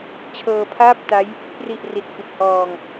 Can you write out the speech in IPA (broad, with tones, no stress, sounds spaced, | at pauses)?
t͡ɕʰ ɤː˧ pʰ aː˥˩ p̚ t a˦˥ j | p r i˨˩ ʔ r i˨˩ t̚ f i˨˩ t̚ h ɔː˧ ŋ